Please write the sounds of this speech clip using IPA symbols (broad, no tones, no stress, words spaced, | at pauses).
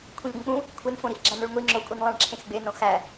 kʷʰĩʎɡʷĩk͡pũ | kʷʰenfõ ɾixɡ͡ǁæ̃noɭŋʷi ŋ͡ǁokʷʼinlˠæ̃ɭ ǁʰẽxɡ͡benõ xæ